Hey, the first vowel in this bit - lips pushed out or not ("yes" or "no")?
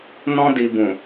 yes